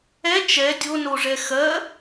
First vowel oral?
yes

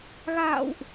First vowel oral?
yes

